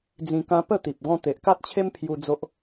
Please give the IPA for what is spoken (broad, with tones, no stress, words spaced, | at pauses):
d͡zĩ˧kã˦ pə˥˧t̪i˨p̚ ɡɔ̃˧t̪e˨ʔka˦t̚t͡ɕʰe˦m pʰju˧ d͡zo˦ʔ